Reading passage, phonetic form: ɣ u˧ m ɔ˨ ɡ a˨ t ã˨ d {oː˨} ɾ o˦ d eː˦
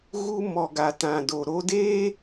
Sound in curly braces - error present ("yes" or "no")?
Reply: yes